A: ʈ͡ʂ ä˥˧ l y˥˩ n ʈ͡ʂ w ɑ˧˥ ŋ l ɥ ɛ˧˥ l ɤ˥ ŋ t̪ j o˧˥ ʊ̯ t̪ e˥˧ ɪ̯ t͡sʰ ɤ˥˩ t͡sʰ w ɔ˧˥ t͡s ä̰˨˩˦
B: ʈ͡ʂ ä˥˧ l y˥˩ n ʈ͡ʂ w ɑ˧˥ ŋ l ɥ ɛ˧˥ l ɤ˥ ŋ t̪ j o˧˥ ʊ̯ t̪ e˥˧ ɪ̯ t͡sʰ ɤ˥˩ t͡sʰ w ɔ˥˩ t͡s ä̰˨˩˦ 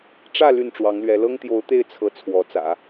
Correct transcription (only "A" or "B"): A